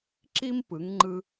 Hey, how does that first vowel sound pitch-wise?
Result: high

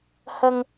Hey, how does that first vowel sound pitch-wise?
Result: low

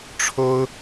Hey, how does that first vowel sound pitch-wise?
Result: high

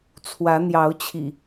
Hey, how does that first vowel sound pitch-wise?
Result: rising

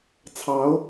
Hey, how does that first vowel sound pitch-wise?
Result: rising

